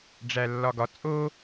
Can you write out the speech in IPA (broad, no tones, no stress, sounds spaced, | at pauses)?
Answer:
ɖ͡ʐ æ lː ɒ ɡ ɒ t͡sʼ o